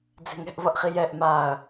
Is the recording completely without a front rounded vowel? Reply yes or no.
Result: yes